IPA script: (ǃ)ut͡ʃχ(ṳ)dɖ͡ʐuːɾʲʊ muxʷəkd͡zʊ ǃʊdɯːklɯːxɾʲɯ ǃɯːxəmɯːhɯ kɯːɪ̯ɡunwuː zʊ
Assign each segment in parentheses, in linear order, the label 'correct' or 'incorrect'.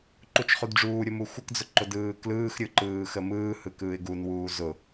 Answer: correct, incorrect

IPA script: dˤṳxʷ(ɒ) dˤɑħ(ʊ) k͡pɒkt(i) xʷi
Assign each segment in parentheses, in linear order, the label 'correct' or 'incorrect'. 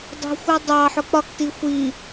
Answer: incorrect, correct, correct

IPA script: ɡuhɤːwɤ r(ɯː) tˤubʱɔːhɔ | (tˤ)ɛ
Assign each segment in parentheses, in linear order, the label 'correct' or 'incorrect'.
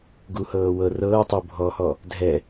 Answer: incorrect, incorrect

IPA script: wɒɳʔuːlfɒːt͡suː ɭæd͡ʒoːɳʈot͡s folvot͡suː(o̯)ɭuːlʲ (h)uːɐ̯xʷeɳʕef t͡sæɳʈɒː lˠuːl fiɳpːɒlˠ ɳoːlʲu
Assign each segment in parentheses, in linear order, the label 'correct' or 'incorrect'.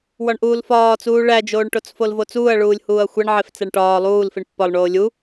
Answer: incorrect, correct

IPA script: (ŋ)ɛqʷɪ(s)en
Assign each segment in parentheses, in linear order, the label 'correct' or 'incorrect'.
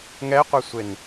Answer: correct, incorrect

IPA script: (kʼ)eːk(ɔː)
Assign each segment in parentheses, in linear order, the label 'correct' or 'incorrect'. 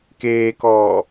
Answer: incorrect, correct

